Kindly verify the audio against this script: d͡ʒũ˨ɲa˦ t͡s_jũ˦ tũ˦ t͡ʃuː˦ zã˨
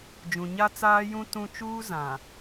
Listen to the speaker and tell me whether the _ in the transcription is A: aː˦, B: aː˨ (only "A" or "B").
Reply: A